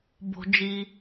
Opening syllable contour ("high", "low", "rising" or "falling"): high